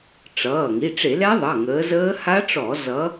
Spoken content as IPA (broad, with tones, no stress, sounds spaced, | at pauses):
ʈ͡ʂ ʌː˩˧˩ ŋ i˩˧˩ ʈ͡ʂ e˧˩˧ l ɛ˦˥ ðˤ ʌ˩˧˩ ŋ əː˨˦ z əː˦˥ h a˦˥ ʈ͡ʂ ɔ˧˩˧ z ʌ˨˦